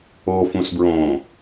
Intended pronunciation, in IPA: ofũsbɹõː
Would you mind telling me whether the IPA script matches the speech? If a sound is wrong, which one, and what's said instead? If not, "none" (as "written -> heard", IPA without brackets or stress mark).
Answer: none